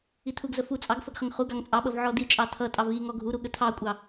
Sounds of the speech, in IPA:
itʰuɡzə fu t͡sʼɑɡ fəɡχəŋχuɡɑŋ t͡sʼɑɓʌv ʕɔdit͡ʃʼɑ tʰʌtʼɑv i ŋɔɡʱuɾu ɠətʰɑkʷʼɑ

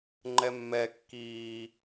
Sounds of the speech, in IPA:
ŋ͡ǃɛmːɛ kːiː

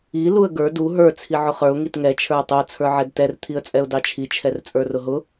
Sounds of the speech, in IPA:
i luə̯ɡə˞ du ɦə˞ t͡sʰiʕʊχə˞ʊ̯ ŋitŋɛ t͡ʃʰə˞ʊ̯tˤʊə̯ t͡sʰə˞ʕɛdtɛr t̪ʰiə̯t͡sʼɛʊ̯dɑt͡ʃʰi t͡ʃʰɛrt͡sʼə˞rʊɦʊ

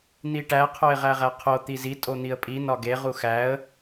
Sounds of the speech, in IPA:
n̪iʈæ qʰoɪ̯ʁæʁæqʰo t̪izi tʼon̪iə̯pʼi nɒɡe ʁuxæə̯

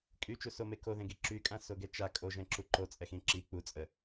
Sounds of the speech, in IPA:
kʼyt͡ʃusome koðẽɡi ǁykʼãsoɡɛ t͡ʃa kʼoʒɛ̃ǁu ǃot͡sʼɛxĩ ǁi k͡put͡sʼə

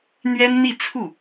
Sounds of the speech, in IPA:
n̪ɥɛ˥nn̪i˥˧t͡sʰu˥˩

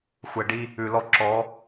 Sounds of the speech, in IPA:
xʷɛ˨ɖi˦ | ʉ˨lɔ˦ ǁɔ˨˦

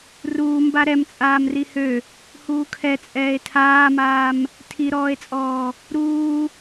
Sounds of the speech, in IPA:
ruːmba ɾɛm t͡sʼaːmrihø | huːkʰɛ t͡sʼɛːe̯tʰaːmaːm | tʰiɾɔːe̯t͡sʼɔː | ɾuː

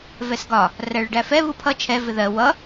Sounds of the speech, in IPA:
vɛsɡɒ | ræɭɪɖæfɛ βupʰʌ t͡ʃʰɛ vɪðɜ wʌ

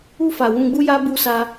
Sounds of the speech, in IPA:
u˧fa˨ wũ˧ɡ͡bu˦ja˦ bu˧sa˧

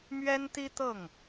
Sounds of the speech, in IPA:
mɥɛ˥nt̪i˥ t̪ɤ˥˩ŋ

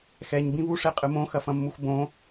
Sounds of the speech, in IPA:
xɛɲ bĩβuʂe qʼɨmõ xɐfɐ̃mːuxbõ

